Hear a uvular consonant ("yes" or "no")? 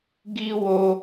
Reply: no